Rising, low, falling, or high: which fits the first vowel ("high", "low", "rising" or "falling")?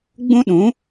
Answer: high